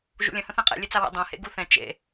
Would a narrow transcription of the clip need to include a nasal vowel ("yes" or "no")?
yes